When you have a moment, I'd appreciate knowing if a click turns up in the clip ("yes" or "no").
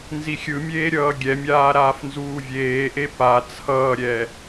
no